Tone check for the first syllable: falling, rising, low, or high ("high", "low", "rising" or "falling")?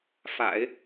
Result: low